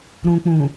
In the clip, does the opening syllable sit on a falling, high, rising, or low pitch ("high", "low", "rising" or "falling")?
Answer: low